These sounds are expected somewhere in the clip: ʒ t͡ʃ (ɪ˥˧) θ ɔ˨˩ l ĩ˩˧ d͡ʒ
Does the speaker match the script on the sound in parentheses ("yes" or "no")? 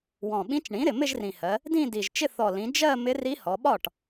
yes